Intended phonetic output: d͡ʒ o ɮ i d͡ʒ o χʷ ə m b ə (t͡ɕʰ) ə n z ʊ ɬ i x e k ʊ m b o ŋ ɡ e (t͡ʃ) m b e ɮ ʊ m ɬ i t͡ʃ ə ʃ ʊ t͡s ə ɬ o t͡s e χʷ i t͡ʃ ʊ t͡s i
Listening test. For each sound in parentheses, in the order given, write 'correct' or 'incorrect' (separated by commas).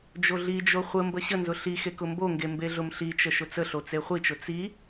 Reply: incorrect, incorrect